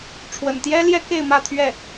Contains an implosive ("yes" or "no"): no